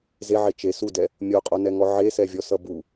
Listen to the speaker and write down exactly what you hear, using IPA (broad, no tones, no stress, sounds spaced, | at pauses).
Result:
z e ʕ e t͡ʃ e s u d ɛ | mʲ o qʼ o n ɛ ŋ ɔ ʕ e s ɛ vʲ ɔ s ʌ b u